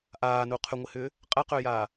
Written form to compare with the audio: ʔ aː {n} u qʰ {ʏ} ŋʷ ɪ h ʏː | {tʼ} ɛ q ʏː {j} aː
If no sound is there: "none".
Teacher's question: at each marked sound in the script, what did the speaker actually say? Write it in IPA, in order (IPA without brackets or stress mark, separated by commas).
n, ʏ, qʼ, j